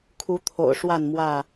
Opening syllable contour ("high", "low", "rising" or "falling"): rising